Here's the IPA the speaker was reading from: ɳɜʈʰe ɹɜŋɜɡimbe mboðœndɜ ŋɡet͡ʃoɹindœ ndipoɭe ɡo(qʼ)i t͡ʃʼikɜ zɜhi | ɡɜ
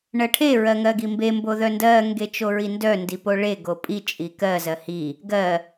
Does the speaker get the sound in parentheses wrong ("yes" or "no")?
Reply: yes